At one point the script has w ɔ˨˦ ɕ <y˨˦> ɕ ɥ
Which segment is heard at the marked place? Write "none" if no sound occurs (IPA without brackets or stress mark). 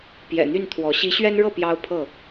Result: i˨˦